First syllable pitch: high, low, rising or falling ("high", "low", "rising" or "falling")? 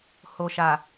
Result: low